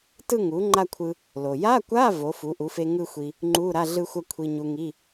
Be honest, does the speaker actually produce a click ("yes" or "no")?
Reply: yes